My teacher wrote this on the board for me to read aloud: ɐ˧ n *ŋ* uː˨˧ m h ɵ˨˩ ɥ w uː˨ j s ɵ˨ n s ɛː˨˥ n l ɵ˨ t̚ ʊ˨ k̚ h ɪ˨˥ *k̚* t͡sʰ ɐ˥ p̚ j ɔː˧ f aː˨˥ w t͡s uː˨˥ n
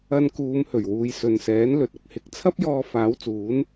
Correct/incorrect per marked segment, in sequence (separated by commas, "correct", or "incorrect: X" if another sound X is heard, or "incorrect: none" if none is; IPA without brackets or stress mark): incorrect: k, correct